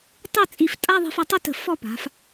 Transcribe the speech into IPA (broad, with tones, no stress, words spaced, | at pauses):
tˤɪ˥˧ t͡sʼi˧˩ftʼa˥˧ðˤi̤˧f œ˧tˤɪ˥tə̤˧˩ fɔ˥˧pa̤˩˧f